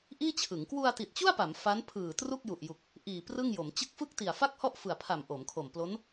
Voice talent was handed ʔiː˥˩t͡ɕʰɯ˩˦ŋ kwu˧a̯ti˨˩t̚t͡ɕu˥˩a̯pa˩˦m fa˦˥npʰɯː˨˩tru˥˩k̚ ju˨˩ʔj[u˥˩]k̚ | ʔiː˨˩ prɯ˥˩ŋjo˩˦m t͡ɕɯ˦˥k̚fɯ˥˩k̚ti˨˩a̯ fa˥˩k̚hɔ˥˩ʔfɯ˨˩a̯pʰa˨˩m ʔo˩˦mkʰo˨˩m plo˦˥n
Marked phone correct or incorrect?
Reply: incorrect